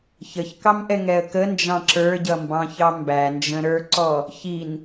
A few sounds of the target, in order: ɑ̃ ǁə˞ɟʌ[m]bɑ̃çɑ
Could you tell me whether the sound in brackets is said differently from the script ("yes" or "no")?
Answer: no